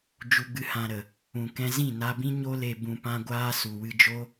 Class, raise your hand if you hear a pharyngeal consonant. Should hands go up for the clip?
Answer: no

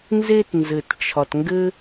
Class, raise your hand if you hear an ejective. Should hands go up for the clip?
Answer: no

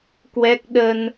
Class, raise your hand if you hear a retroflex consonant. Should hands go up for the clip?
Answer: no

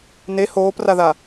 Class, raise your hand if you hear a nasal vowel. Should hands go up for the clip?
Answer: no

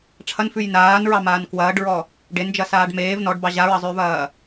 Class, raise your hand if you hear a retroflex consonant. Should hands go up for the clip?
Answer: yes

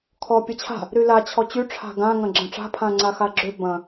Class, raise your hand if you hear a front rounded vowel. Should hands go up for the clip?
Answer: yes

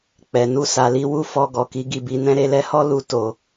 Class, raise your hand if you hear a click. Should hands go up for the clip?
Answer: no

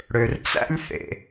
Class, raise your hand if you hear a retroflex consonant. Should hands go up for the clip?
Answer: yes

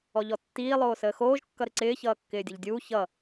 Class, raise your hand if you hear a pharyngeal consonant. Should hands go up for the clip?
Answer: no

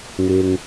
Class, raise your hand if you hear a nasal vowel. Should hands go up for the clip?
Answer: no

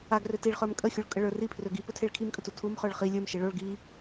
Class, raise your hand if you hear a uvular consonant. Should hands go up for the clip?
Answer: yes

